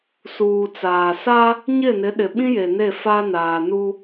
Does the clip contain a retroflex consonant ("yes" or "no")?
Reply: no